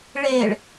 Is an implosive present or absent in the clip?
absent